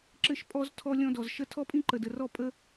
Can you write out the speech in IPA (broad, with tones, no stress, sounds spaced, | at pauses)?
ǁ ɘ˧ ʃ pʼ ɔ˧ z tʰ ɔ˦ lʲ ɔ̃˦ d ɔ˨ z ʃ ə˦ tʰ ɔ˦ pʼ ĩ˦ ǃ ə˨ d ə˨ r ɔ˦ pʼ ə˦